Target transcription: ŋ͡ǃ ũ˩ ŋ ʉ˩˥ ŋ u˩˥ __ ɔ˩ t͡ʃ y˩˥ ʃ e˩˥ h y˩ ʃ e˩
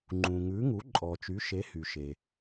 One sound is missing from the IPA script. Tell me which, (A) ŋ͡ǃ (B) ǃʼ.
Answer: B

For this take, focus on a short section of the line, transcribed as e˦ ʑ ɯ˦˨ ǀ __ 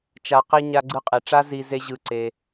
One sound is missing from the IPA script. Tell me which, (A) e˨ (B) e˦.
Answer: B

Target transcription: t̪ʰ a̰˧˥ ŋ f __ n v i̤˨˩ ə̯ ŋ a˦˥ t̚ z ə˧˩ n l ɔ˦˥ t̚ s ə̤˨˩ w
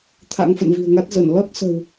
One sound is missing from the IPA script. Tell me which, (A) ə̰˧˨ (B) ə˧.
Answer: A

